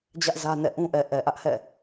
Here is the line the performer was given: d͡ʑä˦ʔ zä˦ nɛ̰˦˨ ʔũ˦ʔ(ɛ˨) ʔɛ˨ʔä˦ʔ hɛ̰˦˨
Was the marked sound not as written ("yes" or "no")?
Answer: no